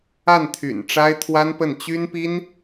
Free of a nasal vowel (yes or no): yes